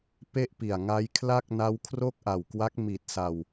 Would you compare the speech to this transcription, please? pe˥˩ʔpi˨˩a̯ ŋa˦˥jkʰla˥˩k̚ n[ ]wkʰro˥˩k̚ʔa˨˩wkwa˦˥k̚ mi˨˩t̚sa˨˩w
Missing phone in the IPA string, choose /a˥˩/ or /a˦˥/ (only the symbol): a˦˥